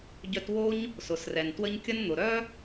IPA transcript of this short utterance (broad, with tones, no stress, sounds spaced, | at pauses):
ɟ œ˧ t w o˦ ɲ | s ʊ˨ s r ɛ˨ n t w ə˦ ɲ kʲ ə˦ n n̪ ʊ˨ ɾ œ˦